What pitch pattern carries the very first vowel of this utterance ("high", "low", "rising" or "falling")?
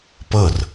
falling